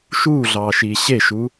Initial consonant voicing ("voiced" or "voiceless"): voiceless